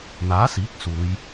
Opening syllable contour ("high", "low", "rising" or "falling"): rising